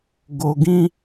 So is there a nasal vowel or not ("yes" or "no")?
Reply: yes